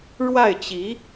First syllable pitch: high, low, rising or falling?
falling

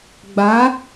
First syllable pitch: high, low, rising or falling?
rising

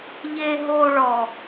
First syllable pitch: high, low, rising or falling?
low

